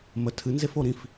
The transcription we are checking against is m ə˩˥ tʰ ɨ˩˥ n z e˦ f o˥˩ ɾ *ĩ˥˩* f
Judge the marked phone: correct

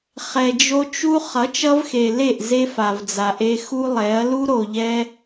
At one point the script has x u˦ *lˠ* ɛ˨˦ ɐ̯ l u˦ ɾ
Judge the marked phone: correct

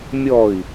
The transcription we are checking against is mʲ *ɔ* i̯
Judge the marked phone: correct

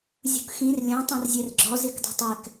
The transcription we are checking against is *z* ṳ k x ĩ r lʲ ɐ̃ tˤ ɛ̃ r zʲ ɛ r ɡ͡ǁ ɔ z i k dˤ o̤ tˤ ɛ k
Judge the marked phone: incorrect: zʲ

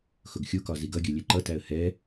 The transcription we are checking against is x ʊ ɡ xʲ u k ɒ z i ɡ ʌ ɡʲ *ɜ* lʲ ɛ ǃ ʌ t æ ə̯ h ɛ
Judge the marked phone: correct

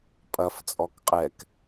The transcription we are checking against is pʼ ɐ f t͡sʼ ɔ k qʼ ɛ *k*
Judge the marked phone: correct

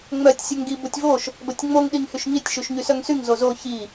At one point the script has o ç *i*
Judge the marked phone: correct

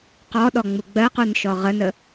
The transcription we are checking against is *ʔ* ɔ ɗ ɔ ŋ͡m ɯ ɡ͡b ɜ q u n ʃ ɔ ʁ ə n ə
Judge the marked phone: incorrect: q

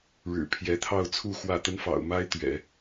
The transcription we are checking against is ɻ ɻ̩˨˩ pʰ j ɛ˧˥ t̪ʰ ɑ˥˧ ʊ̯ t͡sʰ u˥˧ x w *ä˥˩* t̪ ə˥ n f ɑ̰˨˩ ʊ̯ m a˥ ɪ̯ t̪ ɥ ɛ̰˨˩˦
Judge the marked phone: correct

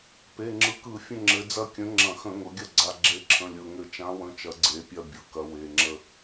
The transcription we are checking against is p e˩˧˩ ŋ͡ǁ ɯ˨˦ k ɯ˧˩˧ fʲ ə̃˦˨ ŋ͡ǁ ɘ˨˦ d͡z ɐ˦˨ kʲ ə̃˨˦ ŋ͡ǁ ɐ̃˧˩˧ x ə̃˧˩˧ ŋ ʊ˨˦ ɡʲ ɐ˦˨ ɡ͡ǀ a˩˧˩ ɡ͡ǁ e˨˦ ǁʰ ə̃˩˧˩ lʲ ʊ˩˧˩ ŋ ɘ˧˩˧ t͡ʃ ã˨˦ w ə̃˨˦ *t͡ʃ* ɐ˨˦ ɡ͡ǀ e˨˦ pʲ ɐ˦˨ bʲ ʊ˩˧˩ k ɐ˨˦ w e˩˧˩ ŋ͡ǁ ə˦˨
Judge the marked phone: correct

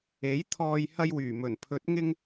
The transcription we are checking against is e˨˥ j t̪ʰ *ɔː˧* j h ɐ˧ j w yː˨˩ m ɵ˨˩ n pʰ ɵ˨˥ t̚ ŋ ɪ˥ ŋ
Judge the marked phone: correct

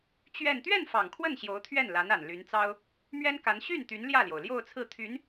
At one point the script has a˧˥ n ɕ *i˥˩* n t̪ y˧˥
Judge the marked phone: incorrect: y˥˩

